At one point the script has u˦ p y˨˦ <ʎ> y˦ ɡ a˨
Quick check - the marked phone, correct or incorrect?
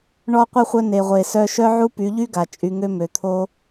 correct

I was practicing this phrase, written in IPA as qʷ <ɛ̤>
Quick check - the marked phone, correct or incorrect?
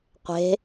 incorrect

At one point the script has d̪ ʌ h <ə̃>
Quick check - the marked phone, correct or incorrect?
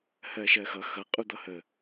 incorrect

